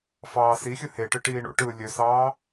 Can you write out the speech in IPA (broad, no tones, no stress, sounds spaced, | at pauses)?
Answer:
f ɑː s i xʲ ɯ h e ʈ ɯ ʈ iː ɳ o̰ ʈ ɯː lʲ ø s ɑː